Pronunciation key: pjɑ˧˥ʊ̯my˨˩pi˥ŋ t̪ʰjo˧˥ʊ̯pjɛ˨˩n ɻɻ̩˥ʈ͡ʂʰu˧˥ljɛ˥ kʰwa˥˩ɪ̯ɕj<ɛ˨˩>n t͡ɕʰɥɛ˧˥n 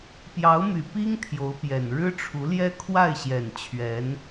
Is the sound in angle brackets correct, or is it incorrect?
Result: correct